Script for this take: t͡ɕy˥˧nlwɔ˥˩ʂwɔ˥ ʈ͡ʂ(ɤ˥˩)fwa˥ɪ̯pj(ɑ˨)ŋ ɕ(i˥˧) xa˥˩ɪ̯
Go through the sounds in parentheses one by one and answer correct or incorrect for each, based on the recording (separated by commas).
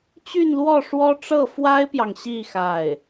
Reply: correct, correct, correct